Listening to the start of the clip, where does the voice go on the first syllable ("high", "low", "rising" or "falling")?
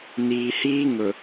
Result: low